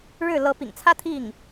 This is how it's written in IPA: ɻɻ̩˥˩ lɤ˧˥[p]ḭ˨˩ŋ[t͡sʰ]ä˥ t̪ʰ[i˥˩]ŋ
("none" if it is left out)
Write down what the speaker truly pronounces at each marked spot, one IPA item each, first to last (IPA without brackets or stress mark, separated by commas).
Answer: p, t͡sʰ, i˥˩